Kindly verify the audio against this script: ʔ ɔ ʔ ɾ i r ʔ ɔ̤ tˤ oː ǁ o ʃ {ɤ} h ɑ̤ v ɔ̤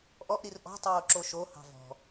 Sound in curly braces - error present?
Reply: yes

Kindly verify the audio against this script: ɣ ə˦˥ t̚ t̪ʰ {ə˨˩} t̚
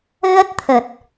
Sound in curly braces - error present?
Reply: no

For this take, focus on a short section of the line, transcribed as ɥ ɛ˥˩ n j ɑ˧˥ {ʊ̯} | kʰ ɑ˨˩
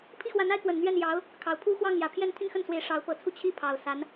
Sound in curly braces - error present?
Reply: no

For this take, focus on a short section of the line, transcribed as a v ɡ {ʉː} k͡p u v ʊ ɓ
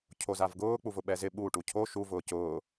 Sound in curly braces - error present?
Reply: yes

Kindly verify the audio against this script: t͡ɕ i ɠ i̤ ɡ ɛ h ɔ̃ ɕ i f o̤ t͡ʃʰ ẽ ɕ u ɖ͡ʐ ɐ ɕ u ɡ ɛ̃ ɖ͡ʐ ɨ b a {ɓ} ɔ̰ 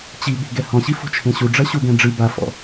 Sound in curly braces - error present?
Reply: yes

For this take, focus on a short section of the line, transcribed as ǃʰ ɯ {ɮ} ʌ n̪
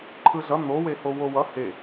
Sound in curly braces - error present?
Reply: no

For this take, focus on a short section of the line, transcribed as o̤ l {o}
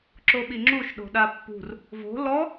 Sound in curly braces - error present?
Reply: yes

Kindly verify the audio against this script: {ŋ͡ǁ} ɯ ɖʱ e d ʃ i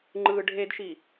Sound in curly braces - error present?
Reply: yes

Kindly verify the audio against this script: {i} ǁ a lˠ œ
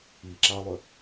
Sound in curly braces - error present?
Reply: no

